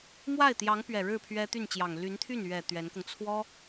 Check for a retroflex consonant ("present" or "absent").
present